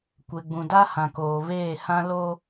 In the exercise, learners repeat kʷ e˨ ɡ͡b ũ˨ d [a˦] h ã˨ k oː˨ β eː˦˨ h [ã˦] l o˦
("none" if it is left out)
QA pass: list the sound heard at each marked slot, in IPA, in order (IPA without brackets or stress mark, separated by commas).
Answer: a˦, ã˦